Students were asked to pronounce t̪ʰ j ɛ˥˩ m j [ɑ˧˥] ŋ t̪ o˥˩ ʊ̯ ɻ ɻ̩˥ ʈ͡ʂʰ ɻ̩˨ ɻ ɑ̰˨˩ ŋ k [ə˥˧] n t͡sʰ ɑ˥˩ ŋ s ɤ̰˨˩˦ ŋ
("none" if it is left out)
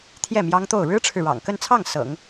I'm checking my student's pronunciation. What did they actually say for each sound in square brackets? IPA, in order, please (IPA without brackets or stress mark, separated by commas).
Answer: ɑ˥, ə˥˧